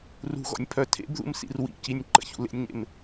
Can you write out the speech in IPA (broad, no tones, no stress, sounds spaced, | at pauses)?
r ṳ ɣ ɔ̰ nʲ pʰ œ tʰ ḛ b ð ṵ m s ḭ r w ḭ c i nʲ ǃ ə̰ ç ṵ l ḛ nʲ ɲ ḛ m